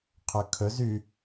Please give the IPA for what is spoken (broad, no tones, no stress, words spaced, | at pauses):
qʰɵkʰɵz y